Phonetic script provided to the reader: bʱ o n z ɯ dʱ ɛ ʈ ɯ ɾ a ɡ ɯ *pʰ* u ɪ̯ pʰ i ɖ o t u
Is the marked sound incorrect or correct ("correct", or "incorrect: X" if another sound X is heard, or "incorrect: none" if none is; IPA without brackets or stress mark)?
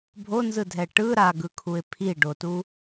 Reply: incorrect: kʰ